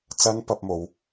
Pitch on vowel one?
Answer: high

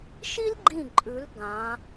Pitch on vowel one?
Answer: high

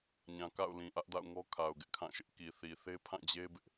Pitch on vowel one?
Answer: low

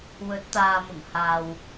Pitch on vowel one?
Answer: rising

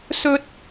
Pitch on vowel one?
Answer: high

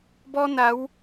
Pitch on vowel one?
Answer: high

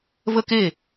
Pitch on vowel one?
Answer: high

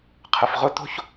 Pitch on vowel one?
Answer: low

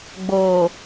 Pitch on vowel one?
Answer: low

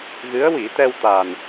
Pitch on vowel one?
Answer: rising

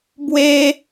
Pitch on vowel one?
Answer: high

